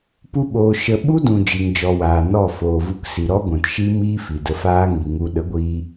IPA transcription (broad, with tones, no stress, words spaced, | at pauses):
pu˦ɓoː˧ ʃə˧ ɓu˦dũ˨ d͡ʒi˨ŋd͡ʒɔ˨ waː˨nɔ˦˨ foː˨vu˧ksi˨ ɾɔ˦ɡʷɛ̃˨tʃi˦ miː˦fi˨də˧faː˦ ŋi˨ŋu˧ ɗə˨˦ɡʷiː˧